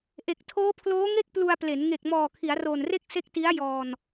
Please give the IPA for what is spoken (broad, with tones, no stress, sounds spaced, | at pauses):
ʔ e˨˩ k̚ tʰ oː˦˥ pʰ l oː˦˥ ŋ e˥˩ k̚ p l u˧ a̯ p l e˩˦ n ŋ e˨˩ k̚ m ɔː˨˩ kʰ i˩˦ a̯ r oː˨˩ n r e˥˩ k̚ s e˦˥ k̚ t i˦˥ a̯ j ɔː˧ n